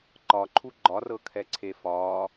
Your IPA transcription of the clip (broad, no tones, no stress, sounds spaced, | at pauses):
ǃ ɒ ǃʰ u ɡ͡ǃ ɒ r ɤ kʰ ɛ ǀʰ e f ɒː